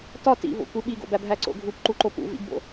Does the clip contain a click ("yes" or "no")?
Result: yes